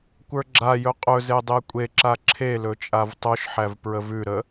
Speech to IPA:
kʷ ə˞ ɡ͡ǁ a j ɵ qʼ ɵ z e dˤ e kʷʼ e ǁ a ǁʰ e l ɵ t͡ʃʼ a v tˤ o ʃ ħ æ v p ɹ ə v ʉ ɾ ə

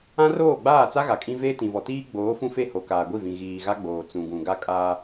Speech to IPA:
ã˦ r oː˦˨ ɡ͡b aː˦˨ t͡s a˦ ɣ a˨ kʼ ĩ˦ v eː˦ t ĩ˨ v ɔ˨ t iː˦ ɡ͡b oː˨˦ f ũ˦ f e˦ h o˨ k aː˨ ɡʷ i˦˨ v ĩ˨ ɣ iː˨ ɣ a˦ ɡ͡b oː˨ t͡s ũ˨ ɡ ũ˨ ɡ a˦ kʼ aː˦

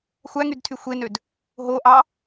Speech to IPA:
xʷ æ ŋ y d tʰ y xʷ e n ø d | ɦ o ʔ ɑ

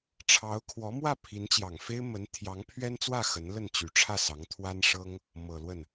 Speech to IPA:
ʈ͡ʂʰ ɑ˧˥ ʊ̯ kʰ w ɔ˧˥ m w ä˥˩ pʰ i˧˥ n t͡ɕ j ɑ˨˩ ŋ f e˥ ɪ̯ m ə˧˥ n t̪ʰ j ɑ˧˥ ŋ pʰ ɥ ɛ˥ n t͡s w ä˥˩ x ə˧˥ n l ə˥˩ n t͡ɕ y˧˥ ʈ͡ʂʰ ä˥˩ s ɑ˧˥ ŋ t̪ʰ w a˥ n ʂ ɤ˥ ŋ | m ɤ˨˩ l w ə˥˩ n

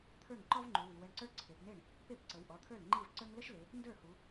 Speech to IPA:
t̪ʰ ə˞˥˩ ŋ ǃ ɔ˥ v ŋ͡ǃ u˩˧ w i˩˧ w ə˩˧˩ ɳ ǀ ə˞˥ ǀʰ e˩˧ p n̪ e˥˩ ɳ | p e˥˩ p ǀ ə˩˧ w ʔ ɔ˩˧˩ t̪ʰ ə˞˥˩ l ŋ͡ǃ i˥˩ v ǀ ə˞˥ ŋ l ə˥ ʃ l e˩˧ | n d ə˞˥˩ h u˩˧

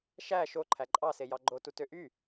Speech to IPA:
ʃ æ ʃ o ǃʰ æ ǃʼ ɑ s e j ɑ ɡ͡ǃ o t u t ø ʔ y

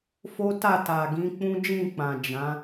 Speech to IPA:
f o˦ t a˦˨ t a˨ ɡ ĩ˨˦ k͡p ũ˦ d͡ʒ ĩ˦˨ k͡p ã˨ d͡ʒ ã˨˦

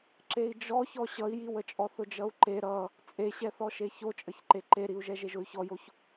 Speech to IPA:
ǁ e i̯ d͡ʒ ɔ ç ɔ ɕ ʌ i̯ j i w ə t͡ʃʼ ɔ θ ʊ d͡ʒ ʌ u̯ ǃ e ɾ ʌ | t͡sʼ e ɕ ɛ θ ɔ ʃ e ç o t͡ʃʼ ə ç ǃ e ǃ e ɾ i u̯ ʒ ɛ ʒ e ʒ ʊ y̯ ç ɔ j o ç

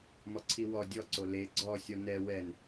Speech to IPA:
m ɔ ǀʰ i w ɔ dʲ ɔ ǀ o l e ɡ͡ǀ ɔ sʲ ɔ n ɛ w ɛ n

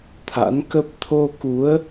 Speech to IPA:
t̪ʰ a̰˧˥ n k ə˦˥ p̚ t̪ʰ o˧ k u˨˦ ə̯

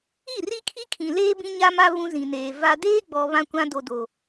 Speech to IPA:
i˦˨ r i˦ kʰ i˦ kʰ ĩ˨ l eː˦ b ĩ˦ ɲ a˦ m a˦ β ũ˦ z ĩ˨ n eː˨ v a˨ d eː˦ ɡ͡b ɔ˨ β ã˦ kʷ ã˦ d o˨ d o˨

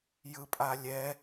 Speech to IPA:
j ɯ pʼ a lʲ ɛ

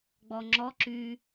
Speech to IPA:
ɡ͡b ɔ ŋ͡ǁ ɔ ǁ y

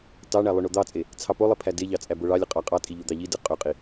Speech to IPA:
t ɑ ɳ æ lˠ ø ɳ o d̪ ɑ t͡sʼ e | t͡sʰ ɑ p o lˠ i pʰ æ d e ʎ ɑ t͡sʼ æ b o ɭ ɑ lʲ ɯ qʼ ɑ qʼ ɑ tʼ i ʎ u d̪ ɑ ʎ i d ɯ qʼ ø qʼ i

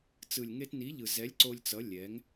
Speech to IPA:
t͡s ɯ˨ lʲ ŋ e˧ t n i˨˦ ʎ ɯ˨ z ɛ˨˦ lʲ ǀ o˧ lʲ t͡s ʌ˨˦ lʲ ɛ˨˦ ŋ

